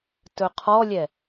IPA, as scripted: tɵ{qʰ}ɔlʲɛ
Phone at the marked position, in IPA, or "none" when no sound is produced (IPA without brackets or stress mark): qʰ